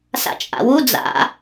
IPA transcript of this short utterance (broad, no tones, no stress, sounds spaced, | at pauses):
s a̰ t͡ʃʼ a̰ w u d͡z a̰